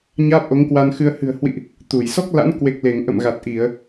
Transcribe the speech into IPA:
ɲ aː˦˥ p̚ ʔ o˨˦ ŋ k w a˧ n x ɨ˧ ə̯ h ɨ̤˨˩ ə̯ h w ḭ˧˨ ʔ | t̪ u˧˩ j s ɔ˦˥ k̚ l a̰˧˥ n k w e˨˩ k̚ l e˧˩ ŋ ʔ ə̰˧˨ m ɣ a˨˩ t̚ ʔ i˧˩˨ ə̯

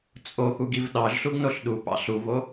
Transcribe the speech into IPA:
t͡sʼ o x u ɡ i v ɗ ɑ ʒ ɬ u ɡ n o ɬ ɗ u p ɑ̰ ɬ u v o

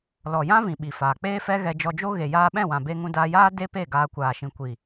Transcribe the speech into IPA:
l ɔ˨ j ã˦ v ĩ˨ ɓ i˨ f aː˨ k͡p eː˦ f ɛ˦ ɣ ɛ˧ d͡ʒ ɔ˧ d͡ʒ o˦ ɣ e˨ j aː˧ ɓ ɛ̃˦˨ w ã˨ b e˧ ŋ ũ˧ d aː˧ j aː˦ d e˦ p e˦˨ ɡ aː˧ kʷ aː˨ ʃ ĩ˨ kʷ i˨

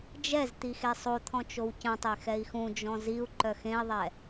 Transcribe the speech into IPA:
d͡ʒ ɛ z t̪ i x e sˤ o t̪ʰ ɔ̃ t͡ʃ o w c ə̃ tˤ e x ɛ i̯ x ũ d͡ʒ ɔ̃ z i u̯ ǃ œ x ẽ i̯ ðˤ ɛ

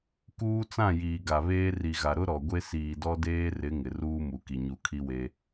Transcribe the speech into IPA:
k uː˦ t͡s ã˦˨ j iː˨ ɡ a˨ β eː˦ r i˨ ɣ a˨ ɾ ʊ˦ ɾ ɔ˨ ɡʷ e˦ s iː˨ d ɔ˦ d eː˦ r ɪ˨˦ ŋ ɪ˨ r uː˦ m u˨ k i˨ ɲ u˨ kʰ i˦ w e˦

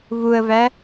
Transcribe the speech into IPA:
v u ə̯ v æ

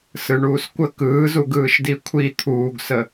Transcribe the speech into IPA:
s ɯ ɳ uː s kʷ ə k ɯː z u ɡ ɯː ʃ d i kʷʰ i t̪ʰ uː ɡ s ə

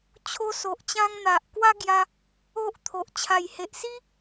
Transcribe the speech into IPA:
t͡ɕʰ o˦ s o˨ ʔ t͡ɕ ã˦ ŋ n̪ a˨ ʔ k w a˦ ɡ j a˧ | o˦ ʔ t̪ʰ o˨ ʔ t͡ɕʰ a˨˩ j h e˨ ʔ s i˦

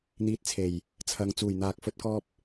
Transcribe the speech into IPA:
n̪ iː˧ t̚ t͡sʰ e˨˩ j | t͡sʰ ɐ˨ ŋ t͡s uː˨˩ j n̪ aː˨ k̚ f ɵ˧ t̚ k ɔː˧ p̚

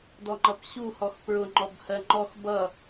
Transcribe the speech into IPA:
d ɔ ŋ͡ǃ ʌ p ɕ u h ɔ x p ɹ ʊ ŋ͡ǃ ɔ b h ɜ ŋ͡ǃ ɔ x b ʌ

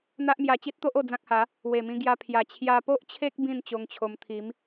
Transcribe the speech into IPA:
n̪ a˦ ʔ m j a˧ t͡ɕ i˦ t̚ t̪ o˦ ʔ o˥˧ d͡z ã˦ k̚ h a˨˦ | w e˨˩ m ĩ˧ ɡ j a˧ pʰ j a˨˩ t͡ɕʰ j a˧ p o˦ ʔ t͡ɕʰ e˦ k̚ b ĩ˥˧ n t͡ɕ o˧ ŋ t͡ɕʰ o˧ m t̪ʰ i˨˦ m

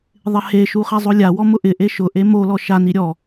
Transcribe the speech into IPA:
ðˤ ɪ h e ʃ u χ ɛ zˤ o lʲ a w ɔ m ʊ ʔ ɪ ʔ e ʃ ʊ ʔ e m o l ɔ ʃ a n i ɾʲ ɔ

